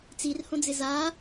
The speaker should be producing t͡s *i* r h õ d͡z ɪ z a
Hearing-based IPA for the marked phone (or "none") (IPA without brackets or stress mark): i